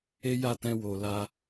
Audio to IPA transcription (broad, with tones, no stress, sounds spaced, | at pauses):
e˦ j a˦˨ t ɛ̃˧ w o˨ l a˧